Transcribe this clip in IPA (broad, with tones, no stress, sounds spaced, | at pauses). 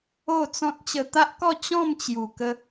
o˥˧ t͡s ɔ̃˦ t̚ t͡ɕ ə˧ t̪ a˦ ʔ k ɔ˥˧ t͡ɕ ɔ̃˥˧ m t͡ɕ j u˨˩ k ə˧